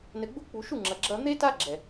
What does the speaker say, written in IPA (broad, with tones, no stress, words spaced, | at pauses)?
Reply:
nɘ˨ɡ͡bu˧k͡pu˨ ʃu˦˨ŋ͡ǁɐ˨ ɡ͡ǁɐ˧ n̪e˦ta˦ ɡ͡ǁɛ˨